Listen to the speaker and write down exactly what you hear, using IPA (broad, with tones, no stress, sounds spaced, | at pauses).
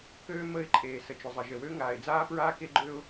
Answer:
k øː˦ m ə˦˨ ɪ̯ ǃʼ eː˨ s ə˨ t͡ʃ ʊ˨ zˤ ə˨ ʒ ə˨ w ø˦ ŋ aː˨ ɪ̯ d͡z aː˦ p ɹ aː˦ k e˦ ɡ͡ǃ ø˦ ʊ̯